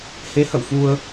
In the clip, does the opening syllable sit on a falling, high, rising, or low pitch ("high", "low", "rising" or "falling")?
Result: rising